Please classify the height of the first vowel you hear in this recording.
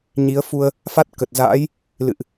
high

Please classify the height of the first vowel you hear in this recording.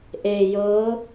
mid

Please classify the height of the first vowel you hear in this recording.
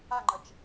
low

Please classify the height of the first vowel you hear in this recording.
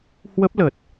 mid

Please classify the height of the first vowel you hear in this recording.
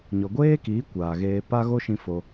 mid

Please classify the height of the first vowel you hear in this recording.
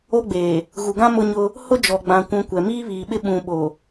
mid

